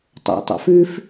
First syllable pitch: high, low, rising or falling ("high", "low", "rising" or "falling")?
low